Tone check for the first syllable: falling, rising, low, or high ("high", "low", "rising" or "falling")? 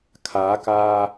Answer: rising